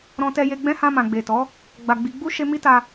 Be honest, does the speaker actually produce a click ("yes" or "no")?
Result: no